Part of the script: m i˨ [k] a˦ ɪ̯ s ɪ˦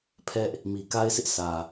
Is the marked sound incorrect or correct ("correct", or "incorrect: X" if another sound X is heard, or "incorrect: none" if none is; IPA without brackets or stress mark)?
correct